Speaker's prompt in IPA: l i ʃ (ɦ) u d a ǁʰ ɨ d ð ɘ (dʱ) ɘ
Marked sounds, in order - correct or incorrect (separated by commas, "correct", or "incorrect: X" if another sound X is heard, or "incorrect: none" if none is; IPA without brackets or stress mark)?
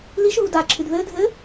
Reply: correct, correct